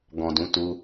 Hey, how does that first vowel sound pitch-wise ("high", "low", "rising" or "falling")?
low